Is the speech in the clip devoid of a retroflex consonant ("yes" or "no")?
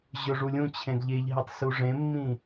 no